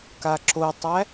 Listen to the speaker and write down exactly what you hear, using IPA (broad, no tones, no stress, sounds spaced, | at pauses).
k a ǁ o tˤ æ